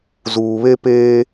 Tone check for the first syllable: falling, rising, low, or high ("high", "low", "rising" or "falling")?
low